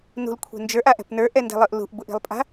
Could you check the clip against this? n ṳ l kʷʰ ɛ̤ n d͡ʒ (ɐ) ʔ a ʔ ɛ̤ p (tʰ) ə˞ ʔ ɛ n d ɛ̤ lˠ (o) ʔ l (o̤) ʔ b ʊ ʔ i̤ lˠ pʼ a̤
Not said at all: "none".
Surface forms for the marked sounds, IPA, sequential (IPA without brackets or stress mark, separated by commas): ə˞, n, ɤ, ṳ